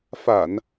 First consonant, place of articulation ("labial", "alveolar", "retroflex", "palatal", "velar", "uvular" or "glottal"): labial